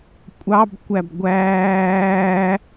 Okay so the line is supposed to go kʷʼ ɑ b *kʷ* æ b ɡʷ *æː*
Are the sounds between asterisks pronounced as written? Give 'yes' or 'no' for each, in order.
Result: yes, yes

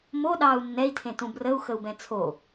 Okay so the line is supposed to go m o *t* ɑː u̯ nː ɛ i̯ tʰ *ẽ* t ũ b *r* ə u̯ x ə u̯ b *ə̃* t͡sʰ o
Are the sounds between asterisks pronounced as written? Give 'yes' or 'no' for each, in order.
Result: no, yes, yes, no

